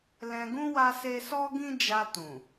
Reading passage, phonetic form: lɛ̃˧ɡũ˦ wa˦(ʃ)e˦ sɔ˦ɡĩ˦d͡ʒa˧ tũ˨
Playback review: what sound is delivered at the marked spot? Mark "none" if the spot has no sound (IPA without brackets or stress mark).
s